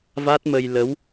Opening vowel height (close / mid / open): open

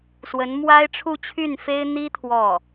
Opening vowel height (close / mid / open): mid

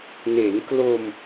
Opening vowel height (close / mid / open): mid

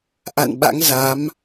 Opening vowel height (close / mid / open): open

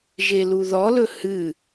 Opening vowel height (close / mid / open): mid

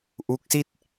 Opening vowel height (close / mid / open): close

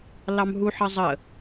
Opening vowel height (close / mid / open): open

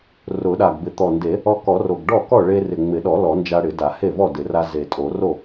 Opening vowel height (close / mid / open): close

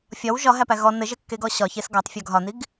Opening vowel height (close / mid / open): open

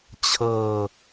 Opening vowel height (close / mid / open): mid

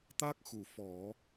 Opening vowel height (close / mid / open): open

